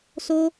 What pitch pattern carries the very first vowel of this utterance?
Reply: high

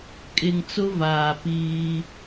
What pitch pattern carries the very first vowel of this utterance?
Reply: low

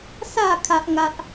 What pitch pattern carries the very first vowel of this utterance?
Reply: falling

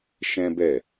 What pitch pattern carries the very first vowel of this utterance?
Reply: high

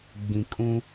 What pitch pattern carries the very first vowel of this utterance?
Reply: low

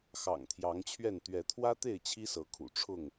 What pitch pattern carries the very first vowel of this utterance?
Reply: low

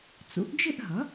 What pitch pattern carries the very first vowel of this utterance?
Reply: rising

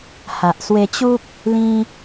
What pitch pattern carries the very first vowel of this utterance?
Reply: low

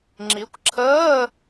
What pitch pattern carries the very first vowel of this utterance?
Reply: rising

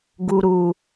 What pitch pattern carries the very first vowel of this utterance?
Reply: low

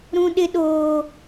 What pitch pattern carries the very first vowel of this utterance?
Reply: high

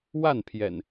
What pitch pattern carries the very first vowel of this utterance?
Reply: falling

